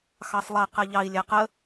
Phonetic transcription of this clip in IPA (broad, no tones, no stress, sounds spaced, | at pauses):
x ɑ sˤ lˠ ɛ q ɛ ʎ ɑ i̯ lʲ ɛ q ə